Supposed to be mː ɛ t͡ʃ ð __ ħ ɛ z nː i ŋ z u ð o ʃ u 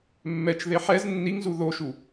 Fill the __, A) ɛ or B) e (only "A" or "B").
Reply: B